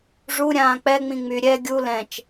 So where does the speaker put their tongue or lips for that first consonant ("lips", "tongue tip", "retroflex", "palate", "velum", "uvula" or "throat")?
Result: retroflex